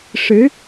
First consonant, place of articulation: retroflex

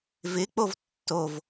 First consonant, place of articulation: labial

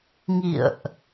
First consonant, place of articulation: velar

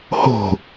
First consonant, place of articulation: glottal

